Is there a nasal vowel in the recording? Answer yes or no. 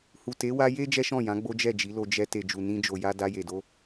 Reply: yes